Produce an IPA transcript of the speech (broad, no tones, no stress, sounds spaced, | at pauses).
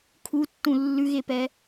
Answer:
kʰ u tː ũ lː ʉ ɣ e p ɛ